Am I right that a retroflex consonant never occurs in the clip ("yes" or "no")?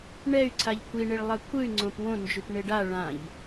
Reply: no